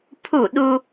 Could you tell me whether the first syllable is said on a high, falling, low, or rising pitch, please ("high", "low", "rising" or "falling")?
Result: falling